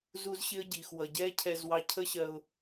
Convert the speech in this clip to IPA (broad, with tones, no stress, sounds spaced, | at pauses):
z u˦ z ɕ ɪ˦ ə̯ ɟ iː˨ x w ʌ˨ ɟ ɛː˦ cʰ ɛː˧ z w ɑ˧ cʰ ə˦ ɕ ɜ˧ ʊ̯